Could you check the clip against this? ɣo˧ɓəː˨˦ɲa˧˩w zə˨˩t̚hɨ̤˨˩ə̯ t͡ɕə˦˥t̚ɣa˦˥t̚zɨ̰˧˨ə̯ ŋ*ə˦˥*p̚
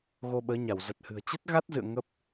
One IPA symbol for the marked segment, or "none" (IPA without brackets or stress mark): ə˦˥